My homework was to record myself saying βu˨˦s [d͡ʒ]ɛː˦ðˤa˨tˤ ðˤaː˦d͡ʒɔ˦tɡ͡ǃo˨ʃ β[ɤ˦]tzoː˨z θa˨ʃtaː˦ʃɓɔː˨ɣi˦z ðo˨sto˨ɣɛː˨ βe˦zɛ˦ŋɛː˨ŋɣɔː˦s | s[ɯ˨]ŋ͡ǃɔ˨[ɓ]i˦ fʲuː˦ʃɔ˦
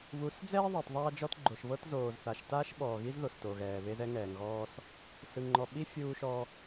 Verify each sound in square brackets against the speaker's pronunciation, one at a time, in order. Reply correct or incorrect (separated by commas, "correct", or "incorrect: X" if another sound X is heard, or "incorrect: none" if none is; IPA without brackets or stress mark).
incorrect: d͡z, correct, correct, correct